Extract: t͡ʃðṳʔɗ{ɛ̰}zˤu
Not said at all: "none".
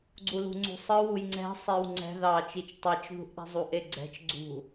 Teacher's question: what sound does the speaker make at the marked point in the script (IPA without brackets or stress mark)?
ɛ̤